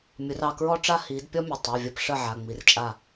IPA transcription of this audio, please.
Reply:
mʲ ʊ˨˦ r ɑ˦˨ k ɹ ɔ˥ ʈ͡ʂ a˥ h i˨˦ d pʲ ɔ˥ mʲ ə˩˧˩ tˤ a˩˧˩ vʲ ɐ˦˨ p ʂ ə˦˨ ʕ a˩˧˩ ŋ͡m i˨˦ r t͡ʃʼ a˦˨

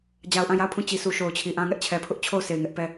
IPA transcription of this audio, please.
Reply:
d͡ʑ a˨ ʊ̯ ʔ ã˦˨ j a˦˨ ʊ̯ pʰ ũ˦˨ t͡ɕ i˨ s u˨ ʃ o˨ ʊ̯ t͡ɕʰ i˨ ʔ ã˦ ŋ ɛ˦ ʔ t͡ɕʰ ɛ˨ pʰ ʊ˦ ʔ t͡ɕʰ o˦˨ ʊ̯ sʰ e˨ ɪ̯ ŋ ɛ˦ ʔ p ɛ˦˨

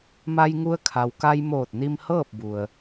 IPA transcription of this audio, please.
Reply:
m a˧ j ŋ u˧ ə̯ kʰ a˩ w k a˧ j m oː˧˩ t̚ n i˧ m h ɤː˥˨ p̚ b u˩ ə̯

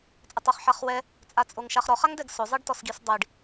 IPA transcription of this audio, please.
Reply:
t͡sʼ ɪ tˤ o χ ħ a χ w ɛ | t͡sʼ a t͡sʼ o ŋ ʃ a χ ɾ ɔ χ a ŋ d ɛ ɡ s ʊ zˤ e ɖ t ɔ s ɡ i s dˤ i ɖ

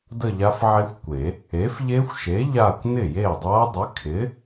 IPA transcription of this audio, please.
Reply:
d ə˥˧ ʎ a˦˥ f ʕ e˦˥ xʷ kʷ e˨˩˦ | e˨˥ f ʎ e˦˥ xʷ ʃ e˨˥ ʎ a˥˧ kʷ n ɪ˥˩ j e˥˩ dˤ a˦˥ dˤ ɪ˨˥ kʰ ɪ˨˥

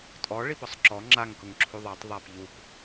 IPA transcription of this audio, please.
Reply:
tʼ ɔ ɭ i p ɔ sˤ ǁ ɔ ŋ͡ǁ a ŋ k ʊ ŋ ǁʰ u ðˤ ɑ tˤ ðˤ æ p ʎ u p

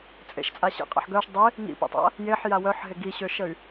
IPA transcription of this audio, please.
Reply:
t͡sʼ ḛ ʃ t͡sʼ a ɕ ḭ qʼ a̰ ħ ɡ œ ʃ dˤ e | ŋ ḭ p ḛ tˤ a̰ | j e ħ j a w œ ħ ɦ e ɡ i ɕ ø ʃ ə y̯

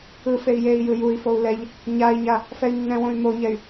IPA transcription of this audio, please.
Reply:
ɯ f e i̯ j e i̯ j ɯ j u i̯ f o u̯ l ɛ ʎ | ɲ a i̯ ɲ a | f ɛ y̯ nː ɛ̃ w õ y̯ m o ɲ ɛ y̯

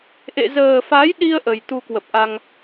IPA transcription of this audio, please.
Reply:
ʔ ḛ˧˨ z əː˨˩ f a˨˦ j ɗ i˧ ə̯ ʔ ə˨˩ j t̪ u˧ k w ə˨˩ p̚ ʔ a˧ ŋ

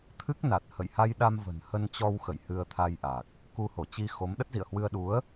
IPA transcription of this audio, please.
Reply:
t̪ʰ ɨ˦˥ k̚ n a˨˩ t̚ h ə̰˧˨ j h a˧ j ɗ a˧ m v ə̤˨˩ n h ə˧ n t͡ɕ ɔ˧ w x ə̰˧˨ j h ɨ˧ ə̯ t̪ʰ a˧ j ʔ a˨˩ k̚ | k u˧ h o˧˩ t͡ɕ i˧ x o˨˦ m ɗ ə˦˥ t̚ z ḭ˧˨ ə̯ h w ɨ˧ ə̯ ɗ u˨˦ ə̯

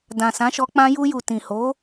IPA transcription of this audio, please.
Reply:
d ã˨ s ã˨˦ ʃ ɔ˧ k͡p ã˧ j u˧ j u˨ t ĩ˨ h o˨˦

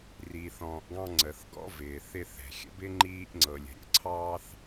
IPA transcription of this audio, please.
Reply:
r iː˨ θ ɔ̃ː˨ ʔ ɡ ɑ̃˦ ŋ͡ǀ ə˩ θ ɡ ɔ̰˦ v ɪː˩ θ ɪ˦ θ ɛ̤˩ xʲ ə̰˥ b ɪ˥ ŋ͡ǃ iː˦ ʔ ŋ͡ǀ ɤ˩ lʲ ə̤˩ ɾʲ ə̰˦ ǀʰ ɑː˦ θ

